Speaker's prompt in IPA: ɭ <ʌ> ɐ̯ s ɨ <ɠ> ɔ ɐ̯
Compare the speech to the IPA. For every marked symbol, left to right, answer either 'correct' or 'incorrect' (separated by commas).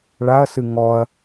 incorrect, incorrect